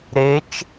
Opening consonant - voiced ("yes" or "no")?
yes